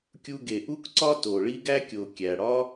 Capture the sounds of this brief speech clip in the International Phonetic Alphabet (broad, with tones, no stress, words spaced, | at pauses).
kʲu˧ɡe˩ʔu˥kǀɒ˥ to˩ɭi˥ɡ æ˥kʲo˩ kʲæ˩ɽɒ˥